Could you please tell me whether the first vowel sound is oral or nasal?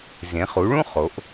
nasal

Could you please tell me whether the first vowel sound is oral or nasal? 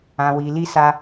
nasal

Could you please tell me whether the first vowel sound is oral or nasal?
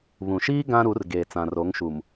nasal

